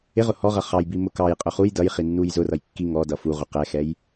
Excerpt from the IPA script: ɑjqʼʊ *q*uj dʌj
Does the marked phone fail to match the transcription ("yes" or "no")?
yes